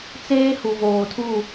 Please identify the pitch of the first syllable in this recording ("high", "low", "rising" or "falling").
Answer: high